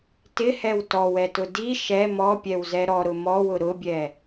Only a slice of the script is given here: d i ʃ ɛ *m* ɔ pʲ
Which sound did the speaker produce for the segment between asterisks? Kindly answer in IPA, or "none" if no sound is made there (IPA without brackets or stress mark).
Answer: m